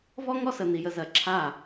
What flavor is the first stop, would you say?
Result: click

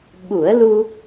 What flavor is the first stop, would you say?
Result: implosive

